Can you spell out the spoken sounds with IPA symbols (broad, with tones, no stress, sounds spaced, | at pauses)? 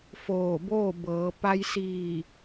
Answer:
f oː˧˩ b oː˥˨ b ɤː˩˧ p a˧ j s iː˧˩